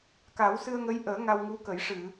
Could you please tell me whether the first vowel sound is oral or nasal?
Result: oral